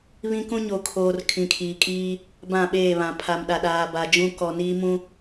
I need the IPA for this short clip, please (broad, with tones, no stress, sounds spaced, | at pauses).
β ĩ˦ k ũ˦ ɲ o˨ kʰ oː˨ r kʰ ĩ˨ kʰ iː˨ kʼ iː˦ | b ã˦˨ ɓ eː˦˨ β ã˨ pʰ a˨ m ɗ a˨ ɗ aː˨ b a˨ d͡ʒ ũ˦ k ɔ˨ n iː˦ m ũ˦